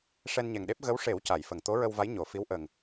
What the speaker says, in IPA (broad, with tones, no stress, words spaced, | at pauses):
ʂɛ˧nɲɛ˨˩ŋɗe˦˥p̚ ɣə˧˥wʂe˨˩˦w ca˨˩˨jfə˨˩ŋ t̪o˧˥ɹə˧wva˧˥j ɲo˨˩˨ fi˧˥wʔə˨˩ŋ